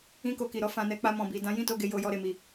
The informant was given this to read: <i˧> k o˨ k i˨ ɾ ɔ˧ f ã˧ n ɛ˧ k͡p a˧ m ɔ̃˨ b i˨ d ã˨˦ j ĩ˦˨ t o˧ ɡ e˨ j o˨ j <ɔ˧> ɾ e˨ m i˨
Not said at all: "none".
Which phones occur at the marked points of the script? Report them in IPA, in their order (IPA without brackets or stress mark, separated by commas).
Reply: ĩ˧, ɔ˧